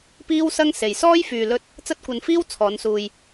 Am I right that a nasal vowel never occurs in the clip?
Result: yes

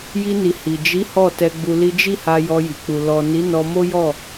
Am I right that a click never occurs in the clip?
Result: yes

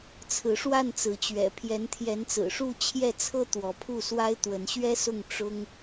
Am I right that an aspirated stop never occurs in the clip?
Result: no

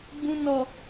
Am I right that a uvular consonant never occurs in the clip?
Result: yes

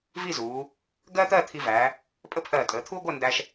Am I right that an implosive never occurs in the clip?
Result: yes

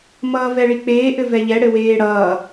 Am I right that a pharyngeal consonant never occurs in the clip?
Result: yes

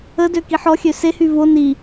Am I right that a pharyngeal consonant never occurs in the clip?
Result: no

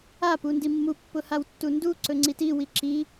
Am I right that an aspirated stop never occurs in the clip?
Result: yes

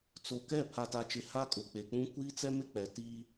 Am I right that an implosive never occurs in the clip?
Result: yes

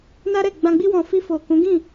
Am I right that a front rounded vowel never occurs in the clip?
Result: yes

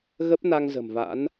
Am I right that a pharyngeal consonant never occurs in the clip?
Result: yes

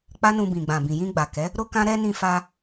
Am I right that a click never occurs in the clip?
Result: yes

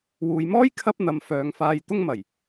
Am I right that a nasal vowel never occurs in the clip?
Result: yes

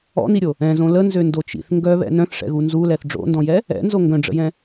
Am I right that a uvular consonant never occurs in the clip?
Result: yes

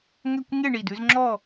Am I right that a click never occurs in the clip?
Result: no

